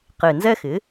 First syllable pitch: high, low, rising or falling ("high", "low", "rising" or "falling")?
low